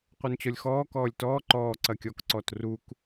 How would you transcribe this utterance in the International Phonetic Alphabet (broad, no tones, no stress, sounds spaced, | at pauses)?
qʷ œ n t͡ɕ ɔ lʲ x ɔː k ɔː lʲ t ɔː ǃ ɔː ǀ ɐ kʲ ɔ k ǀ ɔ t r u k